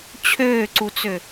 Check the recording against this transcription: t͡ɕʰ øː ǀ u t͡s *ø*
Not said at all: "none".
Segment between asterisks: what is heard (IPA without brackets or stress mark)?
ø